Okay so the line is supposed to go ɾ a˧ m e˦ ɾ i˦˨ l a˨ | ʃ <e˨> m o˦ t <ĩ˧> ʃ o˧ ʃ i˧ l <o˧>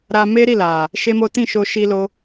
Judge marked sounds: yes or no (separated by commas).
no, no, yes